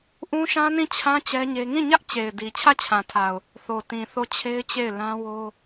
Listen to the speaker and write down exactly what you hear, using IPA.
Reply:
ʔ ũ˦ ʃ ã˦ n ĩ˦˨ t͡ɕʰ ã˦ t͡ɕ ɛ˦ ɲ e˦ ŋ ĩ˦˨ ɲ ä˦ ʔ t͡ɕ e˨ ɪ̯ d i˨ t͡ɕʰ ä˦˨ t͡ɕʰ ã˨ tʰ a˨ ʊ̯ | θ o˨ t ĩ˨ θ o˦˨ t͡ɕʰ e˦ ɪ̯ t͡ɕ e˦˨ ɪ̯ l ã˦ w o˦

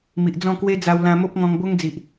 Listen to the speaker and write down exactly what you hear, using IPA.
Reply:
m i˨ ʔ d͡z ɔ̃˥˧ k w e˦ d͡z a˧ w l ã˧ m o˦ p̚ ŋ ɔ̃˧ ŋ b o˦ ŋ d͡z i˨ ʔ

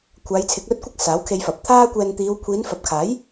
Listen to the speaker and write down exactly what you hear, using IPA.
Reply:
kʷʰ aː˨˧ j t͡sʰ ɪ˨˥ k̚ l ɵ˧ t̚ kʷ ɪ˥ k̚ s aː˨˥ w kʰ e˧ j f ɐ˨ p̚ t̪ʰ aː˥ kʷ ɛː˧ n t̪ iː˨˧ w kʷʰ iː˨˧ n f ɐ˨ p̚ kʰ aː˨˥ j

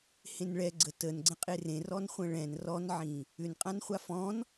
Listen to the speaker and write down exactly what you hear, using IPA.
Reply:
h ẽ n ɭ ɛ ɡ͡ǀ ə t ə n ɡ͡ǀ ə̃ qʼ e r ẽ r ɔ n χʷ ə̃ ɭ ɛ̃ n r ɔ n ʕ ĩ | ʏ n qʼ ã n χʷ a f ɔ̃ n

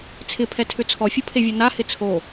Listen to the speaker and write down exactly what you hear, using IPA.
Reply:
t͡sʰ ɪ pʰ ɛ tʰ ʏ t͡sʰ ɔ fʲ o pʰ e vʲ o n a h ɪ t͡sʰ o

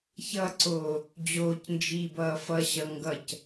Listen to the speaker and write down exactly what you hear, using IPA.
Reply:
ç ʌ ǀ oː | d͡ʑ oː c n d͡ʒ iː b ʌː f ʌ ɕ ʌ ŋ ɡ ʌ c

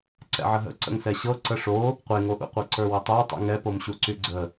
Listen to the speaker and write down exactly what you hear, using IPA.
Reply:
ǀ ɛ̰ ʕ ə ɦ ə̰ ǀ ə̰ ŋ s ɛ ɕ ɤ ǀ ə ʂ o | qʷ e ŋ o ʔ ṵ qʷ ɤ ǀ ə˞ w ə tˤ ə˞ tˤ ṵ ŋ ɛ p o m ɕ u ǀ y ɡ͡ǀ ə

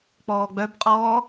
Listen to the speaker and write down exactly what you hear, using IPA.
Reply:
k͡p ɔː ɡ͡b œ b qʼ ɔː

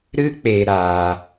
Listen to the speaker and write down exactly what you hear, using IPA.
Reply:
ɾ ɨ˦ k͡p e˧ ɾ a˧

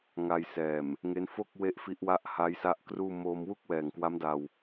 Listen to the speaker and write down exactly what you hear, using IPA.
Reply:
ŋ a˧ j s ɛː˨˩ m | ŋ e˦˥ n f o˥˩ k̚ w e˥˩ ʔ f i˦˥ ʔ w a˥˩ ʔ h a˦˥ j s a˦˥ ʔ k r uː˥˩ m o˧ m w u˥˩ k̚ w ɛː˨˩ ŋ k w a˦˥ m d a˧ w

